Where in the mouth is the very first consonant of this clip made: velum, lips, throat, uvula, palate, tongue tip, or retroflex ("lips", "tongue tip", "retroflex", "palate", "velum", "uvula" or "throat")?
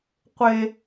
uvula